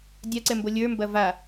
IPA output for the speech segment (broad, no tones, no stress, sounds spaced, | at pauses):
dʲ a ǀ ɛ m b o lʲ ə˞ m b ɐ v a